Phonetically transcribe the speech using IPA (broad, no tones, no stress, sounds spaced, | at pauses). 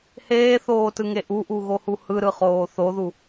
h eː θ oː t ɯ ŋ e ʔ u ʔ u ɣ o h u h ɯ ɾ ɯ χ oː θ o ð u